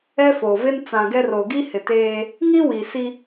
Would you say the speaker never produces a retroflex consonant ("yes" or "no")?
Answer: yes